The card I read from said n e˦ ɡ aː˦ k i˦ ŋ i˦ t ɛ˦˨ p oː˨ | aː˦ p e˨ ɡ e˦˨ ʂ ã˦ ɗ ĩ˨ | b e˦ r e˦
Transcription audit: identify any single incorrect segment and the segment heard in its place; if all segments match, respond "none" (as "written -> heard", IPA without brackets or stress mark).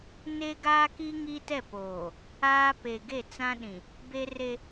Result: ʂ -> t͡s